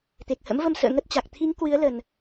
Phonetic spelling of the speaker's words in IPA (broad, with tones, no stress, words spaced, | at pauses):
t̪e˨˩k̚hə̰˧˥mvə˧msə̰ː˧˨ ŋə˦˥t̚t͡ɕa˨˩k̚ t̪ʰi˨˦ŋ kwɨ˨˦ə̯lə˨˩n